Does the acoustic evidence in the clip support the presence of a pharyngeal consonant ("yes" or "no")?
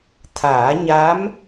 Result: no